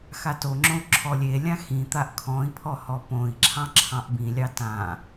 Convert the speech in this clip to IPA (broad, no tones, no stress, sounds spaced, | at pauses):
x a t o ŋ͡ǁ õ u̯ ǁʰ ɔ lʲ e lʲ ã x ĩ t̪ a ʔ kʰ ɔ̃ i̯ pʰ ɔ h ɔ p õ i̯ ǁʰ ɑ̃ ǁʰ ɑ̃ ʔ b ĩ lʲ ɑ t ã